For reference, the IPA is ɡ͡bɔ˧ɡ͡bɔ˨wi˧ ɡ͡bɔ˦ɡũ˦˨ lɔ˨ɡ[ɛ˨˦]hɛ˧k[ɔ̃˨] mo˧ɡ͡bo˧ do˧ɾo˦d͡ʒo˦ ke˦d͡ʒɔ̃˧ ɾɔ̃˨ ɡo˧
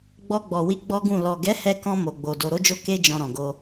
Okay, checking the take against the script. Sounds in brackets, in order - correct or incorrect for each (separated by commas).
correct, incorrect